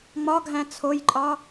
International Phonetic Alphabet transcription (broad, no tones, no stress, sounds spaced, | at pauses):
ŋ͡m ɒ ɡʱ æ̃ t͡sʰ o j ǃʼ ɒ